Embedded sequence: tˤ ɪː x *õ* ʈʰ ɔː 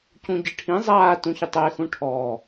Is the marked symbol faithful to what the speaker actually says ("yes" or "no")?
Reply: no